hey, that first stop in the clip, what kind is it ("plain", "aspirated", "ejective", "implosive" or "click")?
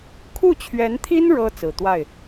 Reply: aspirated